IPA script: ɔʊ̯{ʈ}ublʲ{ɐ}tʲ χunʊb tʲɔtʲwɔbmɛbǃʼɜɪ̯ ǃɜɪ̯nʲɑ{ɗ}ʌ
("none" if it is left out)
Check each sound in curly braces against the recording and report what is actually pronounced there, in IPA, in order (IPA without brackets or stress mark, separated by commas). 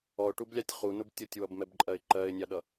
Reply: ʈ, ɑ, ɗ